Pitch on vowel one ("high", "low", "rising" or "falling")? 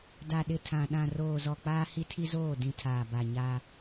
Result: low